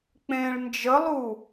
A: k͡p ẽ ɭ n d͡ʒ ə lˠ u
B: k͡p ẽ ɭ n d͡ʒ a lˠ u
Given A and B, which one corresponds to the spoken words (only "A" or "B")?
A